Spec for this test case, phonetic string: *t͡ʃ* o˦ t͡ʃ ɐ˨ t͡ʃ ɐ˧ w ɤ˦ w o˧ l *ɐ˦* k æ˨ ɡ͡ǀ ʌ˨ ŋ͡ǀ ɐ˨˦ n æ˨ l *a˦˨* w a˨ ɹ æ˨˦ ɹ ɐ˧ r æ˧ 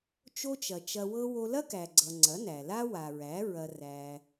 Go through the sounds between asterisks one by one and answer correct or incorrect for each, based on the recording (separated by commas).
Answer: correct, correct, incorrect